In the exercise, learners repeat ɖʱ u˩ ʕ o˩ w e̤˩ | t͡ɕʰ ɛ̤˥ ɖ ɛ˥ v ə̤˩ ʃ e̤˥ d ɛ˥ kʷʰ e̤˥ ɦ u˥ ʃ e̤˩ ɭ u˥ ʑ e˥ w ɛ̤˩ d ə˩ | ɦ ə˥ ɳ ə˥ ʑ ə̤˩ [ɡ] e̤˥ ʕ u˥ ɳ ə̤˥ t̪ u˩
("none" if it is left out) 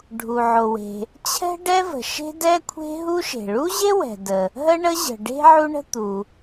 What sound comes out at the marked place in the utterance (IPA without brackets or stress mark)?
ɖ